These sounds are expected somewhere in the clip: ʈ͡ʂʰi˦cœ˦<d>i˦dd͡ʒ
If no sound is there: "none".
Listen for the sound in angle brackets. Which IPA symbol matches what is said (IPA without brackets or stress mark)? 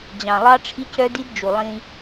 d